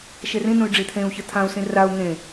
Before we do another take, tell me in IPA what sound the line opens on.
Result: ʃ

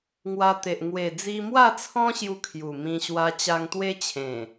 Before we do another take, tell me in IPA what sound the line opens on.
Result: ŋ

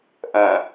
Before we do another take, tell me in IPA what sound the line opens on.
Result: ʔ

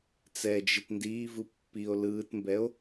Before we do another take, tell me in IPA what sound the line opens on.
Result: t͡s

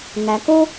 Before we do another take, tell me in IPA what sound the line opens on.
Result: ŋ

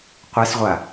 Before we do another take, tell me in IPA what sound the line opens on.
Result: qʷ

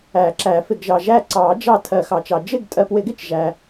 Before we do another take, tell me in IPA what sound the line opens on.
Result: æ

